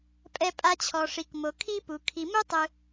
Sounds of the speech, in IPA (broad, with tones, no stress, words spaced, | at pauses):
pʼɛ˨pʼa˨t͡ɕʰɔ˩ʂi˩k mo˩ kʰi˦pu˩ kʰi˩mu˥ tˤɯ˨